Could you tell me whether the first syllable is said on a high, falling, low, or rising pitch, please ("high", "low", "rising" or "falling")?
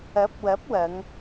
rising